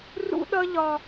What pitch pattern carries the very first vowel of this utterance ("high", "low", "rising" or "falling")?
high